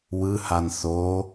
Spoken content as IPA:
wɯhan θo

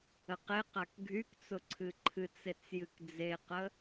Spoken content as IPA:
əqeqak ɡʱykt͡sʊ ǀʰɨǃʰɨt͡set͡s jɨkd͡zeqə

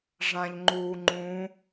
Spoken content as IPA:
ʐãʎŋ͡ǃuːŋ͡ǃũ

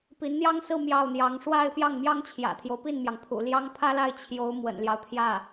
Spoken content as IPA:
pi˧˥nn̪jɑ˥ŋsɹ̩˥˧ mjɑ˥˩ʊ̯n̪jɑ˧˥ŋ ʂwa˥˧ɪ̯ pjɑ˥˩ŋmjɑ˥ŋt͡ɕʰjä̰˨˩t̪ʰjo˦ʊ̯ pi˥˩nmjɑ˩ŋpʰṵ˨˩ ljɑ˥ŋpʰä˥la˥˩ɪ̯ t͡ɕʰjo˧˥ʊ̯ mwə̰˨˩nljɑ˦ʊ̯t̪ʰjä˥˩

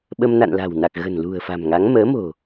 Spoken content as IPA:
ɓə˧m na̰˧˨nla̤˨˩wna˨˩k̚ ɣə̤˨˩nlṳ˨˩ə̯fa̤˨˩mŋa˨˦ŋ məː˨˦mo̤˨˩

